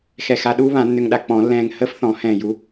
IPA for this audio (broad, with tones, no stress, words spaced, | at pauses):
xɛ˧˩xa˧ɗuː˥ βã˨˩˦nːʏ˧ŋɗa˧ k͡pɔ̃˨˩˦lːɛ̃ː˧ŋ həː˥fθɔ̃˨˩˦hɛ̃ː˧˩ ju˨˥